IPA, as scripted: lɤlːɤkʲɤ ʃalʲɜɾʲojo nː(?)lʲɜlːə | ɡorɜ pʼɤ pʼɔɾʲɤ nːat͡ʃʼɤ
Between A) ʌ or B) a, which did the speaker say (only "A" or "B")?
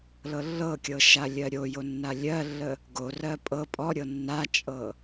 B